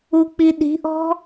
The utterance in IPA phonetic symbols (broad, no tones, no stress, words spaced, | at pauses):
uk͡piɗi̤ʔɔ̤